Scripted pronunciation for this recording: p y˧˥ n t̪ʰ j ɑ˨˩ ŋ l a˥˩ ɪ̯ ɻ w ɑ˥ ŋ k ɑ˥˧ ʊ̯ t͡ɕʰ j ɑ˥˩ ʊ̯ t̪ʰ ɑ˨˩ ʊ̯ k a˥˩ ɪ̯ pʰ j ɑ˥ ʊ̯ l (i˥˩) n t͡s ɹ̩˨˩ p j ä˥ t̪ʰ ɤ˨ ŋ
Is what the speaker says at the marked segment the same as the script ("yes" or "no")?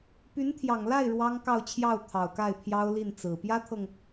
yes